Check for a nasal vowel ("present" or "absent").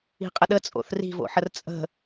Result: absent